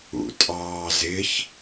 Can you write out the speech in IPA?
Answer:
ṵ tʼ ɑː z ɪ ç

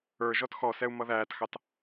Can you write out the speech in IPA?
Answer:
ə˞ ʒ ɔ t x ɔ s ɛ u̯ m ʌ ð æː t x ɑ t

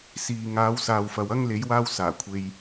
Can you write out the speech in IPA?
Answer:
s iː˨ ŋ aː˨˧ w s aː˨ w f ɐ˨ w ɐ˥ ŋ l e˨˧ j w aː˧ w s aː˨˩ kʷʰ e˧ j

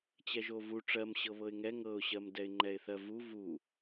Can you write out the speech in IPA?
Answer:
t͡ɕ ɛ ʒ o v u ʈ͡ʂ ɜ m ɕ ɤ β ɤ ɪ̯ ŋ ɛ ŋ ɤ ʊ̯ ɕ ɜ m d ɛ ɪ̯ ŋ͡ǃ ɛ ɪ̯ θ ɜ v u v u

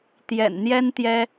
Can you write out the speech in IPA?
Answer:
t̪ j ɛ̰˨˩ n n̪ j ɛ˥ n t̪ j ɛ˥

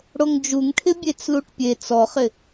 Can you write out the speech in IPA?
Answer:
ɽ o ŋ d͡ʒ u ŋ ʈʰ ɪ bʲ e t͡s l u ʈ pʲ e t͡s ɔ χ ɪ

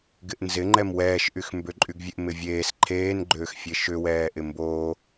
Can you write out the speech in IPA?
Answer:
ɡ ɪ ʔ n z ɪ ŋ͡ǃ ɛ m w ɛː ʃ ʔ y x m b ʏ ǃʼ y ɡ vʲ e ʔ m ɪ vʲ eː s ǃʰ eː n ɡ͡ǃ ʏː x fʲ e ʃ ʏ w ɛː ʔ ɪ m b oː

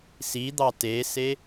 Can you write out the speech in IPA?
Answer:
s i d̪ ɑ t e s e

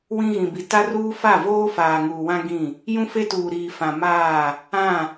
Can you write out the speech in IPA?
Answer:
w ĩ˦ ɣ ĩ˨ b i˨ t a˦ r uː˦ f a˦˨ v oː˦ f aː˨ ŋ uː˨ w ã˦ ɡ ĩ˦˨ | j ũ˦ f e˦ t uː˨ ɾ iː˨ f ã˨ m aː˦˨ | ã˦˨

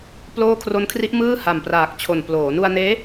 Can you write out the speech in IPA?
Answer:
p l oː˥˩ kʰ r o˦˥ n kʰ r i˦˥ ʔ m ɯː˥˩ h a˨˩ m p r aː˨˩ k̚ t͡ɕʰ o˨˩ n p l oː˩˦ n u˧ a̯ n eː˦˥

